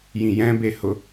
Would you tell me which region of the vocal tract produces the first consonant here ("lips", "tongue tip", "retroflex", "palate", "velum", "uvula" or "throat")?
palate